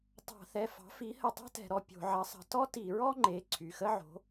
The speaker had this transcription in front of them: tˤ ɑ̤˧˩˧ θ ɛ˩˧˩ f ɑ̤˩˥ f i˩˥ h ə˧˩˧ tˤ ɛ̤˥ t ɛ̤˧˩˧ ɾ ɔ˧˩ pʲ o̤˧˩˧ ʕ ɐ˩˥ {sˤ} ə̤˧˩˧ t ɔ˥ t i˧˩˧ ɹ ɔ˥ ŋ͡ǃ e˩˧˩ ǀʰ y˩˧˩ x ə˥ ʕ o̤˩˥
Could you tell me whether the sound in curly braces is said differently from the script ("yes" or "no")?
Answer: no